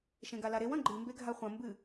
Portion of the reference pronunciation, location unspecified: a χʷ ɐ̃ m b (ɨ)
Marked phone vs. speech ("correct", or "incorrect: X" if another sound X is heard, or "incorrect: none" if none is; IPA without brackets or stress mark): correct